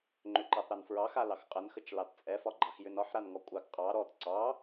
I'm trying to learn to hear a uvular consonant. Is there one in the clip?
yes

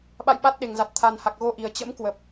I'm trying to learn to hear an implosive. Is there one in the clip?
yes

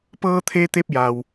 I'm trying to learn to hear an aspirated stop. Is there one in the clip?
yes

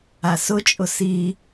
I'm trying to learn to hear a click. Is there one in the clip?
no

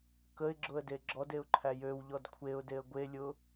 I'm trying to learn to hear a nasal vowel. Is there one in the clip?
no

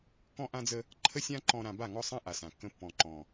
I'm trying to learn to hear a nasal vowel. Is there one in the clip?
yes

